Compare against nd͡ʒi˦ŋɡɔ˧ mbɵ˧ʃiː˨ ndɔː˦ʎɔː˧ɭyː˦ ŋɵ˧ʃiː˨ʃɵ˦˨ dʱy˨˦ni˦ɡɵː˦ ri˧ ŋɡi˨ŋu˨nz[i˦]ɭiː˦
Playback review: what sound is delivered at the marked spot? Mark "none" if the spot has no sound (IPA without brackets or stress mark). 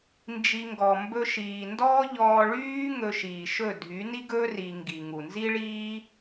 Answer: i˦